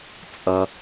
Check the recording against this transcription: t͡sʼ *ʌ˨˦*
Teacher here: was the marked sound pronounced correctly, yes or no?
no